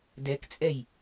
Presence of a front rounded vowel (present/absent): absent